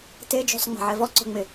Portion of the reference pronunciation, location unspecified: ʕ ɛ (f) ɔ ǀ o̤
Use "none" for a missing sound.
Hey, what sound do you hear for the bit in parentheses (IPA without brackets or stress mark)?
v